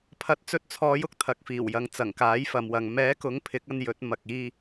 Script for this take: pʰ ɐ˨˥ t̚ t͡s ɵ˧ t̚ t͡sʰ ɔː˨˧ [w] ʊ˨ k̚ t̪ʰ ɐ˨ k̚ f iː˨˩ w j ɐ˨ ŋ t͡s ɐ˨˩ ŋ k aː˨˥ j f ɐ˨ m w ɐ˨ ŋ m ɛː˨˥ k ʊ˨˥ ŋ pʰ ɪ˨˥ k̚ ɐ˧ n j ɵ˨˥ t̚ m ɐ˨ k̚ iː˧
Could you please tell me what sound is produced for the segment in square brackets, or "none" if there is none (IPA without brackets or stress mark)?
j